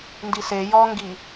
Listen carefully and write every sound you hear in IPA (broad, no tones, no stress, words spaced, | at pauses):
ndise jɔŋɡi